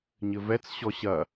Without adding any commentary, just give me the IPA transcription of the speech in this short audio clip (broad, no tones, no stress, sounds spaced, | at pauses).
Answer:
ɲ ɘ v ɛ t͡s ɕ ɔ ɕ ɐ